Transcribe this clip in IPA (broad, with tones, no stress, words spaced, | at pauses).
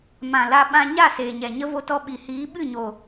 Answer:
mã˨la˧ ɓã˧ɲa˦˨ seː˨ɲɛ˨ɲə˦vo˧ tɔ˧ɓi˨hiː˨˦ ɓɨ˦˨ɲo˨